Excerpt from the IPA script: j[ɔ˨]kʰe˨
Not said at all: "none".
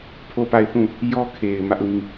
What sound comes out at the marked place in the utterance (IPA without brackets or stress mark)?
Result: ɔ˦